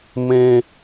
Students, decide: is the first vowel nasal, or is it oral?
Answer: nasal